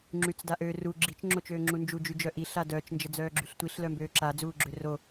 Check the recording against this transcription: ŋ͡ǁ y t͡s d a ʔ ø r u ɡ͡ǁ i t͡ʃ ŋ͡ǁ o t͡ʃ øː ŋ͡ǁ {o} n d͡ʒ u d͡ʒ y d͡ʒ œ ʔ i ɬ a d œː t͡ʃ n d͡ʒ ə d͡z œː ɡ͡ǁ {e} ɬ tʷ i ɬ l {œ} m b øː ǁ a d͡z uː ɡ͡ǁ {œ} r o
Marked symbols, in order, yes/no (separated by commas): no, no, yes, no